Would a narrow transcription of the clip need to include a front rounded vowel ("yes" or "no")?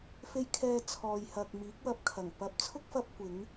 no